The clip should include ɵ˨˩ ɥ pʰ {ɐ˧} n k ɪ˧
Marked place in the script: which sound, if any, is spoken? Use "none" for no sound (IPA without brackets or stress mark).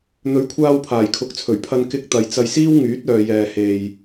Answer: ɐ˧